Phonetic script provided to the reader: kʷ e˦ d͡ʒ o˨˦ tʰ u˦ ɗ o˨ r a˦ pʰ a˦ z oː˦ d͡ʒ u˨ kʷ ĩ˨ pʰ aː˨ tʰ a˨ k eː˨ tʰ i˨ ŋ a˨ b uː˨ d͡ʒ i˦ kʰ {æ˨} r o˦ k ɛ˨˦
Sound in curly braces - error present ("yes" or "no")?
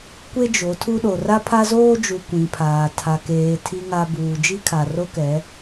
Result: yes